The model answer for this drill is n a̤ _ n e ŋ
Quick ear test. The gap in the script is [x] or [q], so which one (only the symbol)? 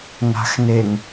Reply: x